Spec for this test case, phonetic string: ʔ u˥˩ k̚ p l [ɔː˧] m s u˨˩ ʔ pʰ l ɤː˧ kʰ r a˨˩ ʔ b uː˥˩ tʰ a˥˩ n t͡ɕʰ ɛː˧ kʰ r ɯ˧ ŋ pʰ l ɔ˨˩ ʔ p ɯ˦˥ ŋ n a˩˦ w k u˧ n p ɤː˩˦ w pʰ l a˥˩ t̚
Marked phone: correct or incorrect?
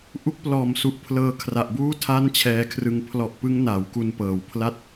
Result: incorrect